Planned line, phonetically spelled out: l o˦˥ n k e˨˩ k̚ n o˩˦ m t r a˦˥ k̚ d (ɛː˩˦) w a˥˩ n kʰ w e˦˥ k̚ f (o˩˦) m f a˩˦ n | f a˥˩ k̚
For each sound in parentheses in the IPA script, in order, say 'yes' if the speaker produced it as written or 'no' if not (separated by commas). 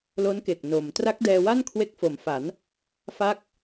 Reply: no, yes